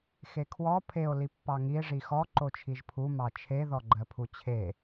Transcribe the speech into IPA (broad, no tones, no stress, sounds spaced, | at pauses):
x e kʰ w ɔ pʰ e o̯ l i pː ɑ ŋ i e̯ ʐ i x ɔ ǃ o t͡ʃʰ i ʒ pʰ u m ɑ t͡ʃʰ e ð ɔ ɡ͡ǃ ɜ pʰ u t͡ɕʰ e